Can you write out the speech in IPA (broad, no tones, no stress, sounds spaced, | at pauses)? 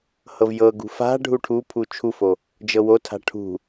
h ɤ v j ɤ ɡ ṳ f a̤ ɖʱ u ʈʰ u pʰ u t͡ʃʰ u f o | d͡ʒ ɤ w o tʰ a̤ ʈʰ ṳ